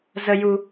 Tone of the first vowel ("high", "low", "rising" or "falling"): low